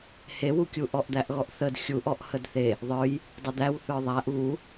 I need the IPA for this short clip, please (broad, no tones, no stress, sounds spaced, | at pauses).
h e w u kʲ u ʔ ɔ ʔ d̪ æ ʔ ɣ ɔ ʔ θ ə d xʲ u ʔ ɔ ʔ h ə d θ e | ðˤ ə˞ j | dˤ ə d̪ æ w θ ə˞ ðˤ æ ʔ β u